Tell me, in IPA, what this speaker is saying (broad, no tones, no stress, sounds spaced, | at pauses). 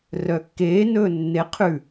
r œ kː eː n ɵː nː e qʰ ʉ